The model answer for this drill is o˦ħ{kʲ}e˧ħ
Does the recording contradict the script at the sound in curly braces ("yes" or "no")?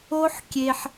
no